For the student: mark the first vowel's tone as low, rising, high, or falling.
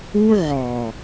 high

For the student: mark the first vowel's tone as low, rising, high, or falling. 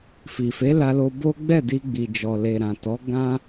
low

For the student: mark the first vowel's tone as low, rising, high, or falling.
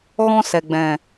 high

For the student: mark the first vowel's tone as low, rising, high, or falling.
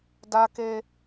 high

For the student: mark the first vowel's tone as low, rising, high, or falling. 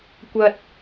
low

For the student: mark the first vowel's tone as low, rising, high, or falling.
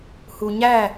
low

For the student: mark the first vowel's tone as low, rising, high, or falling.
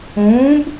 rising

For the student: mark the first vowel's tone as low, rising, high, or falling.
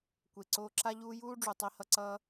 low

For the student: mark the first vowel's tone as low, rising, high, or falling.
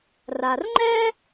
low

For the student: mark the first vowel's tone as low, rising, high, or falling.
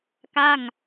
falling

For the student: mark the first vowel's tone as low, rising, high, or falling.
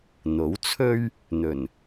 rising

